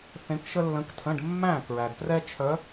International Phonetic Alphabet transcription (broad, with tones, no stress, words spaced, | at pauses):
θẽ˧˥kʃə˥lːə̃˧˥ktʰə̃˧˥˧ɖ mːæ̃˥˨ kɹæ˨dprɛ˥t͡ʃʰœ˧˥